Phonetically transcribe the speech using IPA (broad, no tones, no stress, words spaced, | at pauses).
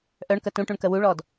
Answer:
ʔœɳkə tũʈũɳkə wuɭɔd